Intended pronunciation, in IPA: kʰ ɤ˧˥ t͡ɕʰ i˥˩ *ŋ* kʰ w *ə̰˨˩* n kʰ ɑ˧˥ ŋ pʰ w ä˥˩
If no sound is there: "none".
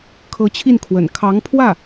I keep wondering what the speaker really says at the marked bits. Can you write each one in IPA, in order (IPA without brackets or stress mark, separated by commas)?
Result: n, ə̰˨˩